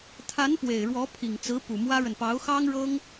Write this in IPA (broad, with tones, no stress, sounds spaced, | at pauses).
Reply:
t̪ʰ a˧˥ n p w e˨˩ ɪ̯ ɻ w ɔ˧˥ pʰ i˨˩ ŋ t͡s ɹ̩˧˥ p u˨˩ m w ä˥ ɻ ə˨ n p ɑ˧˥ ʊ̯ x ɑ˥ ŋ ɻ ɤ˥ ŋ